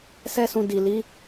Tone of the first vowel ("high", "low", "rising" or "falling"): high